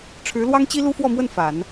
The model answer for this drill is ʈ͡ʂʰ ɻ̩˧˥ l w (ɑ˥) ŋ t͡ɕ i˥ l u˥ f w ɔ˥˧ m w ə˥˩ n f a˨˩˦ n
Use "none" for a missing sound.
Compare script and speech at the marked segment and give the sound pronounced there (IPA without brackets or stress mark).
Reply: ɑ˥